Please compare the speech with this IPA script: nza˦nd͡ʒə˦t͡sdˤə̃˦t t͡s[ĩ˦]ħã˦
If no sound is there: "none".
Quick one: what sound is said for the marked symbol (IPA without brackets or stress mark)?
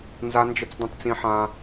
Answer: ĩ˦